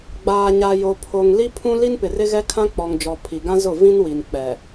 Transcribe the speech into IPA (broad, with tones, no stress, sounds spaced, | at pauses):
ɡ͡b aː˨ ɲ a˨ j o˨ pʰ o˨ ŋ l i˦ pʰ ũ˦ l i˦ n p ɪ˨ r ɪ˦ ɣ ɛ˦ kʰ ã˦ k͡p ɔ˨ ŋ d͡ʒ ɔ˨ pʰ i˨ ɡ ã˦ z ʊ˦˨ v ĩ˦ n w i˨ n k͡p ɛ˨